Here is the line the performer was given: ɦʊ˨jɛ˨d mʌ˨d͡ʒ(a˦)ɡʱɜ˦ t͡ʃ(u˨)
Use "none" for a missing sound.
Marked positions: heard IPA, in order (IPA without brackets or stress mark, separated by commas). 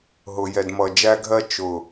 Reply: æ˦, ʊ˨